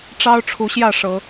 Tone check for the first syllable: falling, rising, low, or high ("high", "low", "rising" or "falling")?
high